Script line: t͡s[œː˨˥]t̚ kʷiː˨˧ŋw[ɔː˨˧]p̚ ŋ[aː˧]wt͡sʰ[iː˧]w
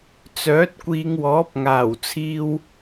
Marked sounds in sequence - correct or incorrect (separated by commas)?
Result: correct, incorrect, incorrect, correct